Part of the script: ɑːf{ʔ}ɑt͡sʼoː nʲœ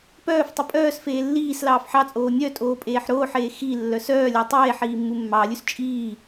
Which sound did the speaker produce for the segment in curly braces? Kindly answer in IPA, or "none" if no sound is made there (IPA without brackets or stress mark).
ħ